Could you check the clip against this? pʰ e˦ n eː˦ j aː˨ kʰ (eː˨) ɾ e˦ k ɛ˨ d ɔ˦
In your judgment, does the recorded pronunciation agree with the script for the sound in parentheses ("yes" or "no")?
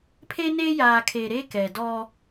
yes